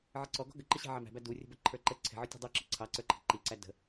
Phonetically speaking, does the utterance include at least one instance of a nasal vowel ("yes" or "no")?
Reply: no